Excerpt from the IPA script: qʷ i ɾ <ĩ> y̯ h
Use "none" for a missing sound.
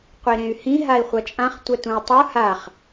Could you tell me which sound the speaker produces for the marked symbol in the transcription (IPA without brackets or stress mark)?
ẽ